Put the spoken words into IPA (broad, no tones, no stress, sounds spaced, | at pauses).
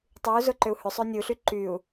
tˤ y u̯ z ʊ ǃ ʏ u̯ h ʏ sˤ ø nʲ u ɬ y ǃ y u̯